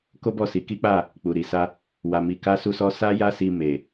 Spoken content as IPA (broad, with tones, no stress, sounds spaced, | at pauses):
k o˦ b ɔ˦˨ s i˨˦ k i˦ k͡p a˦˨ | k͡p u˨ ɾ i˨ s a˧ | w a˧ m i˧ k a˦ s u˦ s ɔ˦ s a˦ j a˦ s i˧ m e˨